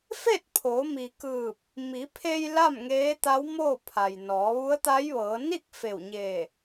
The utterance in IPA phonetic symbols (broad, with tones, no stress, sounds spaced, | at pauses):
f e˥˨ t̚ pʰ oː˩˧ m i˩ k ɯː˧˩ p̚ | m i˩˧ pʰ e˧ j l a˥˨ m ŋ eː˧˥ t̪ a˧˥ w m oː˥˨ pʰ a˩ j n ɔː˩˧ ʋ u˧˥ ə̯ t̪ a˧˥ j ʋ ɤː˩˧ n i˥˨ k̚ f e˧˩ w ɲ eː˧˩